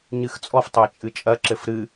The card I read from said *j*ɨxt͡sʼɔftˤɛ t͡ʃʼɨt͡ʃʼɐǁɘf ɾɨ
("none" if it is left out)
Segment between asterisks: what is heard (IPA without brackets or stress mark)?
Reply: ɲ